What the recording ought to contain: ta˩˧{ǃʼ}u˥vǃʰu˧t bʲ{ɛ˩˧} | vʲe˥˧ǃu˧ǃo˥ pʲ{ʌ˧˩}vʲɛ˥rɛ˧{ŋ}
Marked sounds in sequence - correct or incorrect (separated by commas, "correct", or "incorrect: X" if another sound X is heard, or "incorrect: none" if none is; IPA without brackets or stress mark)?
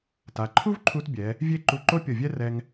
incorrect: ǃʰ, correct, correct, correct